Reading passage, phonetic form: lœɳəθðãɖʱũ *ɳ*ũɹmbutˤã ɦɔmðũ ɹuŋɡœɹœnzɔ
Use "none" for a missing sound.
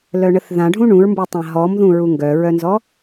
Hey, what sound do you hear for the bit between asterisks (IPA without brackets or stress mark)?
ɳ